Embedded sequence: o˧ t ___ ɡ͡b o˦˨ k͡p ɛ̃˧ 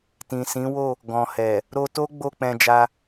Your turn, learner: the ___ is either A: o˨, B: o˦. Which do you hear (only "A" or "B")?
B